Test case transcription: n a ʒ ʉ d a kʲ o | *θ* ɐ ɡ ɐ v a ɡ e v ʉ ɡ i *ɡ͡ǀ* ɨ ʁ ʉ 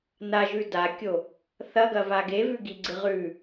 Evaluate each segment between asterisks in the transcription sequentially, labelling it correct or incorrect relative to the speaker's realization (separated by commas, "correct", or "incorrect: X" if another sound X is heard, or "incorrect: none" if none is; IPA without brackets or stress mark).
correct, correct